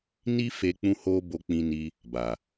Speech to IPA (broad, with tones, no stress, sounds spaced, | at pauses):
n i˦ f e˧ k͡p ũ˧ h o˧ b o˧ k͡p ĩ˧ n i˧ | b a˨